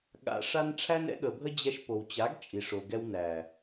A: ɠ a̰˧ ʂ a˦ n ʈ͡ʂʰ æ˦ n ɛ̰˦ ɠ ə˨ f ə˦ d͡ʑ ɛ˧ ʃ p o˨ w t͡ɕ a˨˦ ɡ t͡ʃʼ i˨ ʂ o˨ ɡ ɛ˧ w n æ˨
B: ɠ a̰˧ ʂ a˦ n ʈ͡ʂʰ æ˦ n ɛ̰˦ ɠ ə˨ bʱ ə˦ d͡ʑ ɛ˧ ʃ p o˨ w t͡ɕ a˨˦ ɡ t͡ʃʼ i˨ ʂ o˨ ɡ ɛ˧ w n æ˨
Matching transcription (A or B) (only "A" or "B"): B